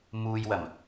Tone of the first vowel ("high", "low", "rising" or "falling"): low